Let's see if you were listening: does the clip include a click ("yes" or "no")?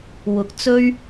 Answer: no